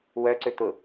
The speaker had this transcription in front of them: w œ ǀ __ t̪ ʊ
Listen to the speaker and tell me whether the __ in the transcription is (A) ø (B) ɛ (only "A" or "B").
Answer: A